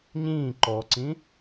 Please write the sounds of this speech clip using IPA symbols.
ɲĩː ǃɔǀĩ

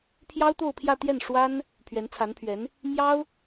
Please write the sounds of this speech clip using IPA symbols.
pʰjɑ˥ʊ̯t̪o˥˧ʊ̯pʰjä˥˧t̪jɛ˥˩n ʂwa˥n | pʰɥɛ˧˥nt͡sʰa˧˥npʰɥɛ˧˥n | mjɑ˥ʊ̯

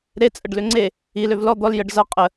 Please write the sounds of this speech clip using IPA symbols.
ɾet͡sʼəɖlʏ ŋ͡ǀe | iløv lɔ d̪ɔl jəɖ zʌ qʼə

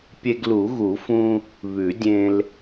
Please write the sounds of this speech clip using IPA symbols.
pʲe˧ɡlu˨˩˦ɣu˨˩˦fũ˧ | βʉ˨˩˦dʲẽ˧l

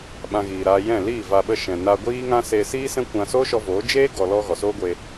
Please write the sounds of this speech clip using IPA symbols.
ɓã˧ɣiː˨ɾaː˧ jɛ̃˦˨ liː˦˨va˧ɓə˧ ʃɛ̃˨naː˧ɡʷiː˦ŋã˦ seː˧siː˦sɛ̃˦ kʷã˧soː˦ʃɔ˧ voː˨˦d͡ʒeː˦ ɡɔ˨lɔ˧ ɣɔ˨soː˦ɡʷeː˧

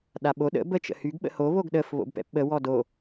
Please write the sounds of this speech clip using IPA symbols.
ɗaɓo ɗə̰ bə t͡ʃə̰hyɡ ɓə̰ho βoɡɗəf βo̰bpɛ̰pɓə wɔdo

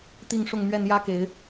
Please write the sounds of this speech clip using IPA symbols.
t̪i˥˨ŋ ʂʊ˥˨ŋmɥɛ˥˨n jä˦ke˨˦ɪ̯

